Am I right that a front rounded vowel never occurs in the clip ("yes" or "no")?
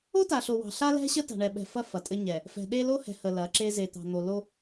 yes